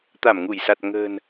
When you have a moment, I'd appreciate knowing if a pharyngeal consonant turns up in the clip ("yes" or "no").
no